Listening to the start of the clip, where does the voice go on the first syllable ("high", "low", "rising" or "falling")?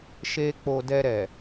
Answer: high